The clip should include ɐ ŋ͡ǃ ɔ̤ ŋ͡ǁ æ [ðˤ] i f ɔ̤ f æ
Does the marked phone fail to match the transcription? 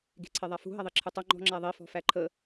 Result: no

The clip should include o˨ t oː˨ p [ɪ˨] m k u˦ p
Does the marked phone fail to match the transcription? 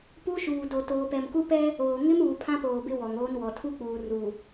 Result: yes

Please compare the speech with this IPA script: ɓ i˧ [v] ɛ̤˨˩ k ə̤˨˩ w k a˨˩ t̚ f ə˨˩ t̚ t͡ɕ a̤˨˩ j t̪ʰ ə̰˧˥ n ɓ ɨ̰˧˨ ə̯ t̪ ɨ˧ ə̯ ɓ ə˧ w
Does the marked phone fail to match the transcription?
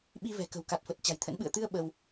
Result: no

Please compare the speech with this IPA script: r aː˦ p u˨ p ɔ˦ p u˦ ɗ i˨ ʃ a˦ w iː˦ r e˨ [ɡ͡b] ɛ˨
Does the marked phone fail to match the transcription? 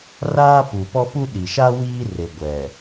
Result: yes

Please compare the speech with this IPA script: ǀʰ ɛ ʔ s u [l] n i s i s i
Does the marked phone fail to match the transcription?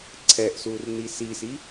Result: yes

